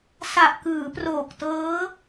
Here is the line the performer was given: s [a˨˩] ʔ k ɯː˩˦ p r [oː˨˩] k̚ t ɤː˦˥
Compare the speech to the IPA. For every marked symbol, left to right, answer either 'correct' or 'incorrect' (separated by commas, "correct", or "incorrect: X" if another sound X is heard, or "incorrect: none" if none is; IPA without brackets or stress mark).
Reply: correct, correct